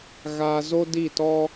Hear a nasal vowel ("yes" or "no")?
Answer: no